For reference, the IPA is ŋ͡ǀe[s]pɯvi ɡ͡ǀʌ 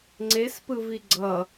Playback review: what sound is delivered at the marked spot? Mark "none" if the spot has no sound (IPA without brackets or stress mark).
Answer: s